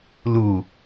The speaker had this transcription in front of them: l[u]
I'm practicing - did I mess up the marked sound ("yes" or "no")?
no